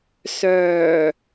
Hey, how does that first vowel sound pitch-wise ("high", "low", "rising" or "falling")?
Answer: low